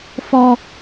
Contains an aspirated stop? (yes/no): no